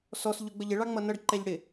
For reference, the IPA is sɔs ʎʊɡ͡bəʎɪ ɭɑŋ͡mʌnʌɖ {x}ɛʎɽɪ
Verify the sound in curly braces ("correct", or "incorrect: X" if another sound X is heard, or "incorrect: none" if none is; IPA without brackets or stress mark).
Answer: incorrect: ǃ